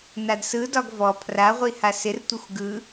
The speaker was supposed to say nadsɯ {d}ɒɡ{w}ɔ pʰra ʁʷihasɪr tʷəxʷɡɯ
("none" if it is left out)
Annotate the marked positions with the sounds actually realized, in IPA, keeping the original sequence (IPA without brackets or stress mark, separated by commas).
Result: d, v